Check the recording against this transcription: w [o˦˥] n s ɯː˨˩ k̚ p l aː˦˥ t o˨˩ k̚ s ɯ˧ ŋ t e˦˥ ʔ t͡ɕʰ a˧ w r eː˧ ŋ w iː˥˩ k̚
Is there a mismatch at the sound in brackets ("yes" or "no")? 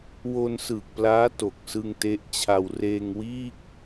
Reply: yes